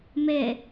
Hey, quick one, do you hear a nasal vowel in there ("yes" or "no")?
no